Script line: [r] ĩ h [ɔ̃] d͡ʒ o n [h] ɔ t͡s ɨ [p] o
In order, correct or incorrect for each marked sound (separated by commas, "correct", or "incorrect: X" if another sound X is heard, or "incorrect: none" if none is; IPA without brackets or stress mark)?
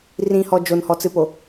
correct, incorrect: ɔ, correct, correct